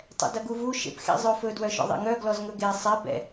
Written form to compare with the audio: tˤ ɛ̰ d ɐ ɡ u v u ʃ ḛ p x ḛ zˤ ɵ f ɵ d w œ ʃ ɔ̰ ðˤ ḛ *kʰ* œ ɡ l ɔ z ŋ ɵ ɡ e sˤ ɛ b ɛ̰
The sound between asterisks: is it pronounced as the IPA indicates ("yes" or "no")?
no